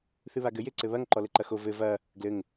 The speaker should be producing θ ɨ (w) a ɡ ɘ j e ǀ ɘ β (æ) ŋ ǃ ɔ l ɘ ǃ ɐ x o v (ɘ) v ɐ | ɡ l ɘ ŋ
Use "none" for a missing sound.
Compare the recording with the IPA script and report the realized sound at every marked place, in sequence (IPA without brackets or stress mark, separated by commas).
β, ɐ, ɘ